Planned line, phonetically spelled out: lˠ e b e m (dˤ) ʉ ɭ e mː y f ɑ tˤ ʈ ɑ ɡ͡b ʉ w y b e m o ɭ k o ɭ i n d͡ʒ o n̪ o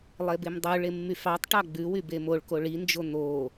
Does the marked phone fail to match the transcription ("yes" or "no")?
no